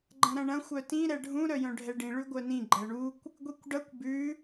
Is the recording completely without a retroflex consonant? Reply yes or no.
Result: no